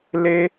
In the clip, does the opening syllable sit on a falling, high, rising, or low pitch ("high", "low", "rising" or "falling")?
high